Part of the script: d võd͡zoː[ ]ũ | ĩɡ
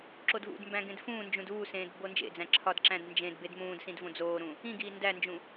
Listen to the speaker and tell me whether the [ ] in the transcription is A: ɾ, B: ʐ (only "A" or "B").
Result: A